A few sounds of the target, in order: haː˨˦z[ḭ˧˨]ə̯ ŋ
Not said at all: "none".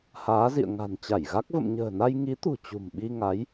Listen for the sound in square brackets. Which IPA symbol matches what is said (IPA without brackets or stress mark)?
ḭ˧˨